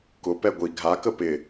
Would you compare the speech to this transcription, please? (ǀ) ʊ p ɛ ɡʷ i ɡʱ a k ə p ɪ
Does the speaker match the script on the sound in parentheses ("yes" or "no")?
no